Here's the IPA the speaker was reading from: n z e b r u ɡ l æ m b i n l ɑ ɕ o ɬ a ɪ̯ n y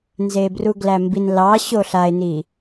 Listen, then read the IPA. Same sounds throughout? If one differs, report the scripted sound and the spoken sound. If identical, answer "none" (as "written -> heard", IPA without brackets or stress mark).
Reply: y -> i